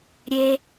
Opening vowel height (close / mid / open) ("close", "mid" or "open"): mid